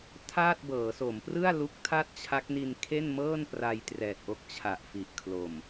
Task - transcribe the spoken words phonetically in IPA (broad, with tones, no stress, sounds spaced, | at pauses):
tʰ aː˥˩ t̚ b ɤː˩˦ s o˩˦ m p r ɯ˥˩ a̯ l u˦˥ k̚ tʰ a˥˩ t̚ t͡ɕʰ a˦˥ k̚ n i˧ n kʰ e˥˩ n m ɤː˥˩ n p r a˧ j t r ɛː˨˩ t̚ ʔ o˦˥ k̚ t͡ɕʰ a˨˩ ʔ f i˨˩ ʔ kʰ l o˨˩ m